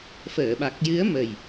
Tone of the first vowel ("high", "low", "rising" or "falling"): low